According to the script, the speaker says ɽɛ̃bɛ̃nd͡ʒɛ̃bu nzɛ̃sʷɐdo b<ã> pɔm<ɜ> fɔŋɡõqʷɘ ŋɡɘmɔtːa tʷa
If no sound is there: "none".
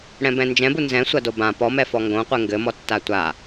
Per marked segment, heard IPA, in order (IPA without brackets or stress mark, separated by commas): ã, ɛ